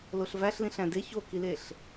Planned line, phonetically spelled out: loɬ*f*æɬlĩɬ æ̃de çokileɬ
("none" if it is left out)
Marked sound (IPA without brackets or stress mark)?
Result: v